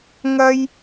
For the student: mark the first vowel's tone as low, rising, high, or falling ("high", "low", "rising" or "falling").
high